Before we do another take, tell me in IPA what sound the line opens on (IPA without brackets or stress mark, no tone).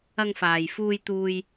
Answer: ɐ